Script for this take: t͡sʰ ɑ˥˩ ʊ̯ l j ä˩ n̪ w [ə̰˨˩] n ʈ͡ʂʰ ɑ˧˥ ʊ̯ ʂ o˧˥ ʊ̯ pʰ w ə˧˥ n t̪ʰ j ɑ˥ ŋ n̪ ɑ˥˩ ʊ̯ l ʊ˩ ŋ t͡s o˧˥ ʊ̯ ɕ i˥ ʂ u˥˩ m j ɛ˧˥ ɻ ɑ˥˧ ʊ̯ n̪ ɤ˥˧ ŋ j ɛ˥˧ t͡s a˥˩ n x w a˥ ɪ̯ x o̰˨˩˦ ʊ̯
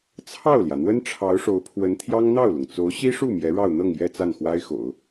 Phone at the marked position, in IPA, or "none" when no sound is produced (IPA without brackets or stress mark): ə˥